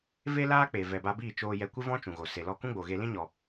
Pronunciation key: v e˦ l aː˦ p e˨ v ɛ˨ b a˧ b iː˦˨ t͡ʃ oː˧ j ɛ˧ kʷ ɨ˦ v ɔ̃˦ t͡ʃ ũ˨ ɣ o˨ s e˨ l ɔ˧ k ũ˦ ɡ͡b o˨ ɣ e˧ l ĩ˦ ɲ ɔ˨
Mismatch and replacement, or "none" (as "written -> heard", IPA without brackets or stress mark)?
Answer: p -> k͡p